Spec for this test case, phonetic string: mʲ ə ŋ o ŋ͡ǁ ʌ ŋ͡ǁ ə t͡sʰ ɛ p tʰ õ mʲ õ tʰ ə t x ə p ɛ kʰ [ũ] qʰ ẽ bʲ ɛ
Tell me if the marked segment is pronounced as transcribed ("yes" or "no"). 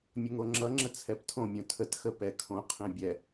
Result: no